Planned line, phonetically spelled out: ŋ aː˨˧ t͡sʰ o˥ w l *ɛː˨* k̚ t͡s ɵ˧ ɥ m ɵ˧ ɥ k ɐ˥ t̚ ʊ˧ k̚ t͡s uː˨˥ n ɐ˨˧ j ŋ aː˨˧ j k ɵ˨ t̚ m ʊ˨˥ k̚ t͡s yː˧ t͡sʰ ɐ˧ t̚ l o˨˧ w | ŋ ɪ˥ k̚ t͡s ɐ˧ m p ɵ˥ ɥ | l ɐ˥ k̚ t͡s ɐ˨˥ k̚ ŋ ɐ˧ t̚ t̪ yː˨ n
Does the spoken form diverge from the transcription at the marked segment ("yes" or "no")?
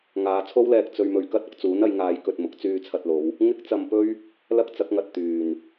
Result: yes